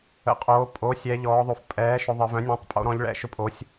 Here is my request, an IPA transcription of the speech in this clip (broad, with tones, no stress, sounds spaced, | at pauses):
ə̰˩˧ qʼ oː˩˧ pʼ o˩˥ sʲ ɛ˩˧ ʎ ɔː˩˧ ðˤ o˩˧ f pʼ ɛː˩˥ ʃ ʊ˩˧ ðˤ ə˩˧ v œ̃˩˥ nʲ õ˩˥ tˤ pʼ o̰˩˧ ɾ ɔ̃˩˧ ʎ ɭ ɛ̰˩˥ ʃ ʊ˩˥ pʼ o˩˧ sʲ